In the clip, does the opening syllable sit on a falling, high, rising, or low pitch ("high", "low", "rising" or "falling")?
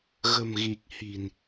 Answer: low